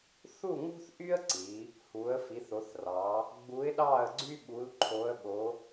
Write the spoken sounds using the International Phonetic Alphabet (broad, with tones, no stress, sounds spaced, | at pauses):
θ u˥˨ ŋ ṳ˥ θ ʔ y˥ ə̯ ǀ i˩˧ | h u˩˧ ə̯ f i˩˧ θ o˩˧ θ r ɑ˩˧ | ɡ͡b u˧˥ ɪ̯ ɗ ɑ˥˨ ə̯ ɡ͡ǀ y˥ ɓ u˧˥ l ǃʰ o˧˥ ə̯ ɓ o˧˥